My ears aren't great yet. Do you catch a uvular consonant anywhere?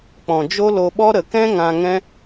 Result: no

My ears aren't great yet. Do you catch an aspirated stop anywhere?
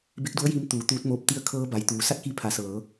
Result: yes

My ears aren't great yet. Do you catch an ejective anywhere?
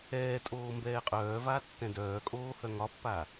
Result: yes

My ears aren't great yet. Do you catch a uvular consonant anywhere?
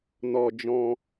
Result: no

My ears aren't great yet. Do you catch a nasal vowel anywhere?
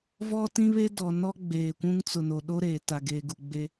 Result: yes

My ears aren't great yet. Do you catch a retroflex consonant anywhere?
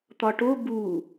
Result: yes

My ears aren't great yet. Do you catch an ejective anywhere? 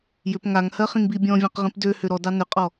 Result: yes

